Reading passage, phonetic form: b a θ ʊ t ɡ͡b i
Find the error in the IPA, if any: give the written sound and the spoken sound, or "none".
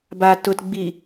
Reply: θ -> t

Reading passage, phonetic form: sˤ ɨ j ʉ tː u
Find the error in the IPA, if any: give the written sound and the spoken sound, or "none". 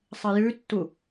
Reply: none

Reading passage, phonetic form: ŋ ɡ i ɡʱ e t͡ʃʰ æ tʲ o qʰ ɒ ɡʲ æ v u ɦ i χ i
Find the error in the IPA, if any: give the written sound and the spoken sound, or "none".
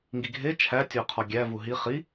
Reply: none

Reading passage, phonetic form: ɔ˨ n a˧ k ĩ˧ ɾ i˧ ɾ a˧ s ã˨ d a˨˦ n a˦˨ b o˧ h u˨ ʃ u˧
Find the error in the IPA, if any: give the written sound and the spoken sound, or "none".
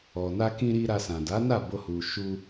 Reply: none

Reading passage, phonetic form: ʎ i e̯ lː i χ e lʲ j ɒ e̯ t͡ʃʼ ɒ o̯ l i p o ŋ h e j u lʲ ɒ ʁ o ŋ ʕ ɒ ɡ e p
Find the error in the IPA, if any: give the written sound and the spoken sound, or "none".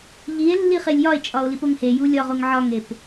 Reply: ɡ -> ŋ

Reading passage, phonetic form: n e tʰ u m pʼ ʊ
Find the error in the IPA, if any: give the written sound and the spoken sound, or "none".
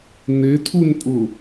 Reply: m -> n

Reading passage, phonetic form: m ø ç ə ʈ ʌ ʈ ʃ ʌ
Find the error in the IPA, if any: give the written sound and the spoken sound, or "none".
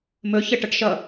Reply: ø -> ɵ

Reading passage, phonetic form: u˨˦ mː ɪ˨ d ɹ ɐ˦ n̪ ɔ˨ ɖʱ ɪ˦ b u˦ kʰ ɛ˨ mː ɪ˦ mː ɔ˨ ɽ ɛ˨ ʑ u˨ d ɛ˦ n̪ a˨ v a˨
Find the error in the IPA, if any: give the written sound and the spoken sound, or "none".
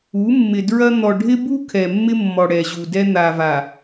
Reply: none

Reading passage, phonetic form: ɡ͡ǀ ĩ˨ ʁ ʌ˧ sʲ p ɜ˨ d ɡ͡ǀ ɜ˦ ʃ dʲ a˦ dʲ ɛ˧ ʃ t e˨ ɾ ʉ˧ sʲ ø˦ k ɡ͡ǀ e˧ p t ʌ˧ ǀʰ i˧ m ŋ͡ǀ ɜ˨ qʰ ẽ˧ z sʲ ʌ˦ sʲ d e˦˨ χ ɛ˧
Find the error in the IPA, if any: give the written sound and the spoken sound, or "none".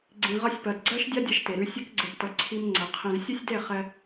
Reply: none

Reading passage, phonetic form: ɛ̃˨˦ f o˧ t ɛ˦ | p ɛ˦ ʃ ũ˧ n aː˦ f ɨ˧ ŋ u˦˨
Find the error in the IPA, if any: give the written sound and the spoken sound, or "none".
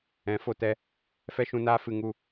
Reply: p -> f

